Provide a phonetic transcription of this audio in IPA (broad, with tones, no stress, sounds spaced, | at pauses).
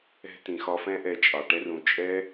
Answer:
ɛ̤˧ t ĩ˨ x ɒ˧ f ɛ̃˦ ʔ ɛ˧ t͡ʃʼ ɑ˨ ʈ ɛ˦ r ũ˧ t͡ʃʼ ɛ˦